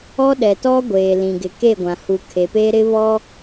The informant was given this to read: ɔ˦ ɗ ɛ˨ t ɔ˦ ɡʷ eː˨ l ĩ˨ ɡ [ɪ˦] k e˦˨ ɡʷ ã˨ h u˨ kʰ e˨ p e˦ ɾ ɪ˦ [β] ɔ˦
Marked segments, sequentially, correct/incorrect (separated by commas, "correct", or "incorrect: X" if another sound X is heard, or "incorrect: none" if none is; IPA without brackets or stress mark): incorrect: ɪ˨, correct